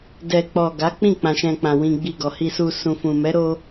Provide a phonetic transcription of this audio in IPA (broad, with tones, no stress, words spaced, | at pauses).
dɛ˨k͡pɔ˨ ɡa˨˦k͡pĩ˦˨ k͡pã˧ʃɛ̃˧k͡pã˨ wĩ˧ɡ͡bi˧ ɡɔ˨hi˧su˧ sũ˨fũ˨mɛ˨˦ ɾo˦